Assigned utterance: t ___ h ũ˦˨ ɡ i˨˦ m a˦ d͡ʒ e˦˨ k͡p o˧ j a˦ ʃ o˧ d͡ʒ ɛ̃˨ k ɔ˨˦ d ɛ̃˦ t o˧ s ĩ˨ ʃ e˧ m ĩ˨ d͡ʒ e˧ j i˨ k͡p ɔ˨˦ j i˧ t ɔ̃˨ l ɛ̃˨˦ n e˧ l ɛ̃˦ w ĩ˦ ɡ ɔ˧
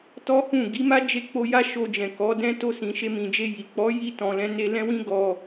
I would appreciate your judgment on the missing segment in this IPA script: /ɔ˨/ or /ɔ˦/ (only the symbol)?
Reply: ɔ˦